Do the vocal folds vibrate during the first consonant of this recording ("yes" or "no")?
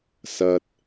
no